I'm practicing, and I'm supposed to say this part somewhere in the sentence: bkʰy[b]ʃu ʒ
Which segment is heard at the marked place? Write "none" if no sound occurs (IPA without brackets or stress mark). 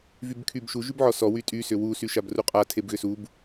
b